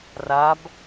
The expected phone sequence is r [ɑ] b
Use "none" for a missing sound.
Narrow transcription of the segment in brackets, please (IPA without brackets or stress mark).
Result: a